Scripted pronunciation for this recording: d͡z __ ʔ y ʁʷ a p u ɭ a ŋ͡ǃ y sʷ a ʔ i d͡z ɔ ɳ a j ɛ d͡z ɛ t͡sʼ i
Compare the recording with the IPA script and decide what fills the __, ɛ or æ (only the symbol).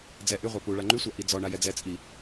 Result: ɛ